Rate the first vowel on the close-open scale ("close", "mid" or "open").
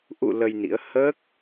close